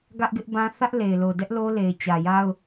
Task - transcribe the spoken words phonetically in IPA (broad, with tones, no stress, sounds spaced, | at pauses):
ɡ ä˦ ʔ ɡ ɪ˦ ʔ b ã˦ θ ä˦ ʔ l e˨ ɪ̯ l o˨ d ɛ˦ ʔ l o˦ l e˨ ɪ̯ t͡ɕ ä˨ j a˦ ʊ̯